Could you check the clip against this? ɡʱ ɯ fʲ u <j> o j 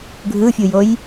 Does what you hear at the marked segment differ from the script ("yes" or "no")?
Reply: no